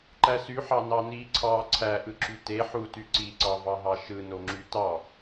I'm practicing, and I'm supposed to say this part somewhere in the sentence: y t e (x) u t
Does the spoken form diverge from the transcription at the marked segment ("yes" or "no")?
yes